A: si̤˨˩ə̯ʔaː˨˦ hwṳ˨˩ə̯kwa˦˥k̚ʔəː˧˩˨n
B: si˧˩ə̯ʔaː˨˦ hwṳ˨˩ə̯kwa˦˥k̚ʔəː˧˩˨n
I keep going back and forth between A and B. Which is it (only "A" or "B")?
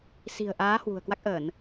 A